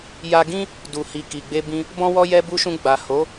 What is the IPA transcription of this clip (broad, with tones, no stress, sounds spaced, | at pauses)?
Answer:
j a˧ ɡ ĩ˦ | d u˨ h i˨ k i˨ ɡ͡b e˧ b ĩ˧ | b ɔ̃˦ w ɔ˦ j ɛ˧ b u˧ ʃ ũ˧ ɡ͡b a˨ h o˨˦